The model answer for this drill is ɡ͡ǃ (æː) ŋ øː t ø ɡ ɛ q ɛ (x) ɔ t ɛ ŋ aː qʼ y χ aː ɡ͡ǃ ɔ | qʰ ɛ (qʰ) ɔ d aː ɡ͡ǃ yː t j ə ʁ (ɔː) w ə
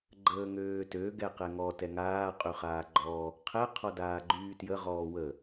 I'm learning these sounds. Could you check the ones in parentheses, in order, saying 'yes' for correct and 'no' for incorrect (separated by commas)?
no, no, yes, yes